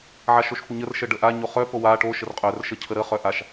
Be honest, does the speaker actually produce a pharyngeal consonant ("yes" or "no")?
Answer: yes